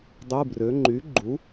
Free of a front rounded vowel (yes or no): no